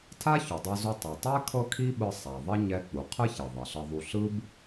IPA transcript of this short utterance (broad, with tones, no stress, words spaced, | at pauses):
tʰa˥çu˩dˤɤ˧zu˧ tˤɛ˩tˤɛ˥ kʰɤ˥kʰi˥ɓɯ˧ sˤa˩ðˤi˥ ɲɛ˧ k͡pu˩qʰɯ˥çɛ˩ ðˤɛ˩ɬɤ˧ ðˤu˧ ɬɯ˥b